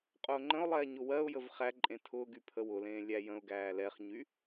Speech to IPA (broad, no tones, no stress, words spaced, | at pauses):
qʼʊːŋ͡ǃə̃ʊ̯lˠɛː ɲʊwɜʊ̯jəv χæǃʼẽ tʰʊː ɡypʰəwʊlẽː lʲæjə̃ʊ̯ɡæː lɛχɲy